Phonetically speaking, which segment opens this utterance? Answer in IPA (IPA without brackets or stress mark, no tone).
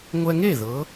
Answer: ŋʷ